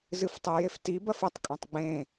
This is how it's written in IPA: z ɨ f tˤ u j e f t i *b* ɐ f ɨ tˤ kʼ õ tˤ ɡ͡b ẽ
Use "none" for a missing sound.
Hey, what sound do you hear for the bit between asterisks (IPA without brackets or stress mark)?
b